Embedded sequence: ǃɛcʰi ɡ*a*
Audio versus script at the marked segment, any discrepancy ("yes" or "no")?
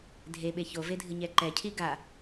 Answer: no